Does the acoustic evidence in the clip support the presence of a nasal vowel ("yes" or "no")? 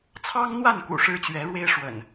no